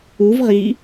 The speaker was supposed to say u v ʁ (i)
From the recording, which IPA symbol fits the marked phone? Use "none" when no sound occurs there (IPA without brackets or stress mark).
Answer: i